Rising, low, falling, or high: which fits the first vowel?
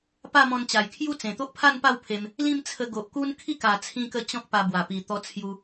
falling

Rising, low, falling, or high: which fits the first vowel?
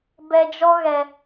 low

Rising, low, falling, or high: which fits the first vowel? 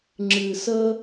low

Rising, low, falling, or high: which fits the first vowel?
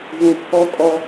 low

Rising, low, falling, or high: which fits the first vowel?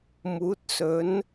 rising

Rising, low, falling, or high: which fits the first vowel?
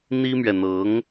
high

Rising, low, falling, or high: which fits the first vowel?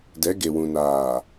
rising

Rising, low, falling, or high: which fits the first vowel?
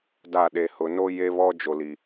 falling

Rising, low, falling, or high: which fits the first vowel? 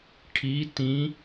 rising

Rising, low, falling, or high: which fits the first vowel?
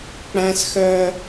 high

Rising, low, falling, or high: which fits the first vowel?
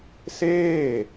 falling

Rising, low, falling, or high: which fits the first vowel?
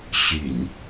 low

